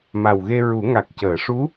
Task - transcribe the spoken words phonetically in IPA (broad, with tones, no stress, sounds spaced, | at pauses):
m a˨˩ w ɣ e˧ ɹ u˨˩˦ ŋ a˨˩ k̚ c əː˨˩˨ ʂ u˧˥